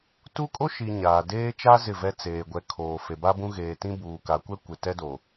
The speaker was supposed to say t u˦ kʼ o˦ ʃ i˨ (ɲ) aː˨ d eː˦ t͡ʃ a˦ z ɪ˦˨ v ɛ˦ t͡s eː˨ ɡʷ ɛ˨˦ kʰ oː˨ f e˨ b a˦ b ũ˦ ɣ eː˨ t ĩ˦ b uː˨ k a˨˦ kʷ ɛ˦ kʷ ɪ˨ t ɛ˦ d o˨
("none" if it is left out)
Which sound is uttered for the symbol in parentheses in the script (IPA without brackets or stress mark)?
ɲ